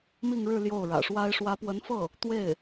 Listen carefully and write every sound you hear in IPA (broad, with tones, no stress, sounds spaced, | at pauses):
m i˥˧ ŋ ɻ ɻ̩˥˧ l j o˥˩ ʊ̯ ɻ ä̰˨˩ ʂ w a˥ ɪ̯ ʂ w ä˧˥ p w ə˧˥ n f ɤ˥˩ | t̪ w e˥˩ ɪ̯